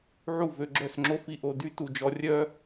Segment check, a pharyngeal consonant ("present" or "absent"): present